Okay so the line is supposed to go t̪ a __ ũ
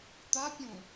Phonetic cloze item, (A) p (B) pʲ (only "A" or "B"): B